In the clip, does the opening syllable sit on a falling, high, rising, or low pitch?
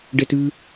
high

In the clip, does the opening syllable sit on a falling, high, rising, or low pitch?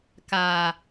low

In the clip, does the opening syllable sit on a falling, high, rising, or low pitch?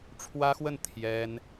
high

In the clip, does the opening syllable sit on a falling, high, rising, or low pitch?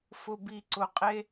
low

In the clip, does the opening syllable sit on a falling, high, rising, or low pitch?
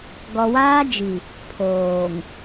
low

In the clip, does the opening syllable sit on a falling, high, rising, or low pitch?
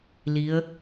rising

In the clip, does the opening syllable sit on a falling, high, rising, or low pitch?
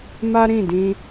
high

